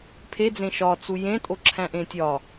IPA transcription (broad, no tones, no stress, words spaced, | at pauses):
pʰed͡zẽ ʃɒt͡su jẽtʼoǁʰæ̃ʔẽ tʲɒ